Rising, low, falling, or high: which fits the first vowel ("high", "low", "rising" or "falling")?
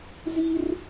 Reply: high